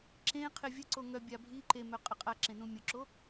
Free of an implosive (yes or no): yes